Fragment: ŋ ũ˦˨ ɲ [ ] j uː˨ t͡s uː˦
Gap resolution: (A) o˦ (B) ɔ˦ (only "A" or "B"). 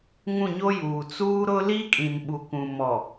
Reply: A